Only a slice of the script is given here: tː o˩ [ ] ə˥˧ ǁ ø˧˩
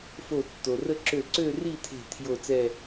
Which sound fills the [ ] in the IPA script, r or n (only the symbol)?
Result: r